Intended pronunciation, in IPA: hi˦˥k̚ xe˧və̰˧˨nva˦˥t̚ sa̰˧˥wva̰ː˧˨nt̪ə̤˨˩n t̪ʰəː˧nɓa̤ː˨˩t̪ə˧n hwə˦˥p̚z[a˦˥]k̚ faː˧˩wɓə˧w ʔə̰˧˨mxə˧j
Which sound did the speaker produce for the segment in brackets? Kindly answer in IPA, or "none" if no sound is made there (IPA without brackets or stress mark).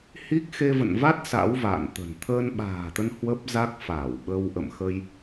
a˦˥